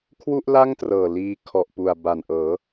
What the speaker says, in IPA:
kʰwu˥˩ʔla˥˩ŋtrɤː˨˩ liː˧ kʰɔ˨˩ʔpu˨˩a̯ ba˨˩nʔɤː˩˦

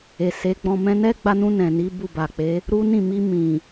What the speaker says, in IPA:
e˨se˨˦ ɡ͡bɔ̃˧ mɛ̃˧nɛ˦ɡ͡ba˧nũ˧ nɛ̃˨ni˨˦ bu˦˨ba˨k͡pe˨˦ | ɾu˦nĩ˦˨ mi˧ mĩ˨

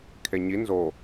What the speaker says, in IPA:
kʰeɲi nzo

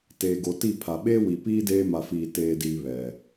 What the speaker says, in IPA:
teː˨ɡo˨ti˦˨ pʰa˨ ɓeː˦wi˨piː˦ deː˦ ma˨fiː˨teː˨diː˨ βɛ˨

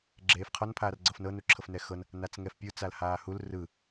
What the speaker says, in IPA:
ɡ͡ǁeːfqʰɔn pʰaːrɡ͡ǀɤfnɤ nuǁʰɤfnɛxɤn | nat͡sŋɛfpʲu t͡salhaːhul rɯ

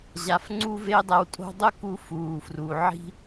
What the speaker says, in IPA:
ʑa˧˥fŋ͡ǀu˥ ve˥dˤɛ˧˥wtʼo̤˥ dˤʊ˥ku˧fuː˩fru˩ ʕi̤˧

